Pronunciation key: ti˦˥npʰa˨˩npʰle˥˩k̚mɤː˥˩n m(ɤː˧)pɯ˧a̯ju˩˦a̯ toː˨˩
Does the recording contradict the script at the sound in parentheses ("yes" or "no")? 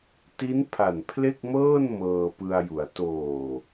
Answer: no